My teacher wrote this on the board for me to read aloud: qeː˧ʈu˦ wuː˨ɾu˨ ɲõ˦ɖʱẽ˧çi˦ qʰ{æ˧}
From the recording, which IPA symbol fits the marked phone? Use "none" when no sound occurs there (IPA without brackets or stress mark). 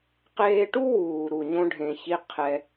ɛ˧